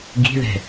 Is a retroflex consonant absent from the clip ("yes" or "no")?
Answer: yes